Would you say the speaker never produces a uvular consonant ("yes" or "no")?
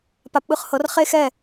no